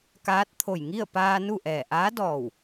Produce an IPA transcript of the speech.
k aː˧˥ t̚ t̪ʰ o˧˩ j ŋ i˥˨ ə̯ p aː˧ n u˥˨ ʔ ɛː˧˩ ʔ aː˧˥ d ɔː˧˩ w

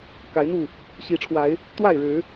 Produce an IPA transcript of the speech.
k a˨˦ ɪ̯ n̪ u˥˨ | ɕ i˨˦ ʈ͡ʂʰ w a˨˦ ɪ̯ | t̪ w a˥˨ ɪ̯ ɻ ɻ̩˨˦

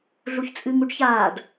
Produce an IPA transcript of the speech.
ɮ u ç t͡sʼ ɨ ŋ u ɖ ç aː ɖ

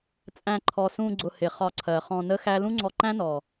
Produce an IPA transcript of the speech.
t͡sʼ æ̃˧ ǃʰ ɔ˨ s ũ˧ ɡ͡ǀ ʊ˧ h ɪ˨ χ ɒ˧ ǀʰ ɜ˨ χ ɔ̃˧ n ə˦ x æ˦ l ũ˦ ŋ͡ǀ ɔ˧ ǃ æ̃˦ n ɔ˨

